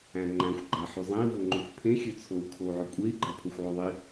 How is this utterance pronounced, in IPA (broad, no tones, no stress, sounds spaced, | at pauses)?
æ̃ ŋ͡ǃ æ̃ xʷ ɡ͡ǃ æ ħ y zˤ ẽ i̯ v o ŋ͡ǃ ø xʷ pʰ ẽ xʲ ø t͡sʰ o u̯ kʰ o u̯ ʕ ø kʷʼ e i̯ ɡ͡ǃ æ pʰ o xʷ ʕ o ðˤ i